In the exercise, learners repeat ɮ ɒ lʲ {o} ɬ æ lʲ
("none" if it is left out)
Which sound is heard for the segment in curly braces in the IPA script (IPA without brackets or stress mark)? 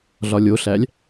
o